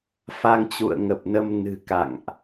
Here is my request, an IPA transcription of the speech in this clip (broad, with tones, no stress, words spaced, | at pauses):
fa˧ŋt͡ɕṵ˧˨ə̯ŋə˨˩p̚nə˧m nɨ̤˨˩ka̰˧˨ŋʔ